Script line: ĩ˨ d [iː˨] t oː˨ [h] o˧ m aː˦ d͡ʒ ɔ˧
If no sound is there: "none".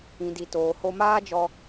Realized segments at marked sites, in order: i˨, h

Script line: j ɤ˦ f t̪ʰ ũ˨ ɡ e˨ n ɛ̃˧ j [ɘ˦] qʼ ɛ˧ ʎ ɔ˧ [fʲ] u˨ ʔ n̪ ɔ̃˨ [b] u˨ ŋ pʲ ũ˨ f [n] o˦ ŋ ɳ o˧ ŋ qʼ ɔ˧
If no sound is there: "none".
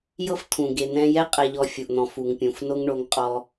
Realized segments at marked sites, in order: ɛ˦, fʲ, f, n

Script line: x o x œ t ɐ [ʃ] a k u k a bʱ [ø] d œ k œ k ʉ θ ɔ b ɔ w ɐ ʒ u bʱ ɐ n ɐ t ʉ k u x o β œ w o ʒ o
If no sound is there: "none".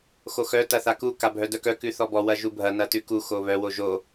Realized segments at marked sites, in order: θ, œ

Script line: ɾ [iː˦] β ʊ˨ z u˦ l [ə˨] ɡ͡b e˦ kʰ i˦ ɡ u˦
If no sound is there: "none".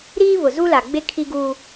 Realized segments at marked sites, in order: iː˦, a˨

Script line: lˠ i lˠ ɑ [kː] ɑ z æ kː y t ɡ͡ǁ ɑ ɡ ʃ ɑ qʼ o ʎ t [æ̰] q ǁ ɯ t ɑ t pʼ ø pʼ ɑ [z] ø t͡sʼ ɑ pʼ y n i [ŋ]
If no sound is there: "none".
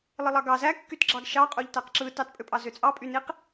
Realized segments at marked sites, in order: ɡ, æ, z, q

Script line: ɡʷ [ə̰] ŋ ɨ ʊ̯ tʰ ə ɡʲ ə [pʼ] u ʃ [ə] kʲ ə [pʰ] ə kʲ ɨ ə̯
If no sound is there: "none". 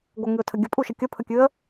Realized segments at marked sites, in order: ə, pʼ, ə, pʰ

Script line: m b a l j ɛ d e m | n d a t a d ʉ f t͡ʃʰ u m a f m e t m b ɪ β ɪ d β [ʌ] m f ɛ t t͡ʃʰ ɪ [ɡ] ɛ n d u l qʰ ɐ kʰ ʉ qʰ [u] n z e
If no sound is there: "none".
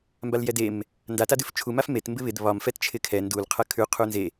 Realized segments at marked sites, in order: ɒ, kʰ, u

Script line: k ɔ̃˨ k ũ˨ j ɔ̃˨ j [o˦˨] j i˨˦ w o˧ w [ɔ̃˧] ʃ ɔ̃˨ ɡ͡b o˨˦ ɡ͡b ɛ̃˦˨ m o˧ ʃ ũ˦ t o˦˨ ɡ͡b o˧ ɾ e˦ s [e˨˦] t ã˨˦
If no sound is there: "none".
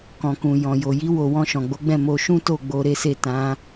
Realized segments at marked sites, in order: o˨, ɔ̃˧, e˦˨

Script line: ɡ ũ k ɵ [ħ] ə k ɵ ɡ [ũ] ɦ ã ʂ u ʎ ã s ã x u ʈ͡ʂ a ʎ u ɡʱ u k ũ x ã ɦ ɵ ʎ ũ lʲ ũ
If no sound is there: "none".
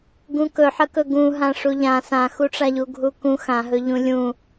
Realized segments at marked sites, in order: ħ, ũ

